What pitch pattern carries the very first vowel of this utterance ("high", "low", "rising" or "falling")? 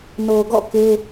low